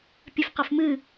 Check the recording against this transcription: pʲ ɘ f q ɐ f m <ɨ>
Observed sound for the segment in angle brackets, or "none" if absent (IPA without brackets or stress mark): ɨ